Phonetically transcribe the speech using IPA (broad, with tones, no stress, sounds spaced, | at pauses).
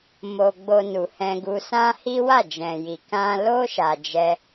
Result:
m o˧ ɡ͡b o˧ n u˨ h ɛ̃˧ ɡ u˧ s ã˦ h i˦ w a˦˨ d͡ʒ ɛ̃˨ j i˨ k ã˧ l o˦ ʃ a˧ d͡ʒ ɛ˦